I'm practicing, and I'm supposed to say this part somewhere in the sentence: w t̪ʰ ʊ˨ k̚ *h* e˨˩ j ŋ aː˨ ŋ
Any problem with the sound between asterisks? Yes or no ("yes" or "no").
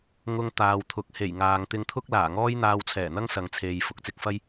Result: no